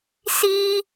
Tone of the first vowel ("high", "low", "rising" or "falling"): high